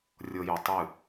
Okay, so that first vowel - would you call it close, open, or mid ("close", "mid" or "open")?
mid